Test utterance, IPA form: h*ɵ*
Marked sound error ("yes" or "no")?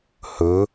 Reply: no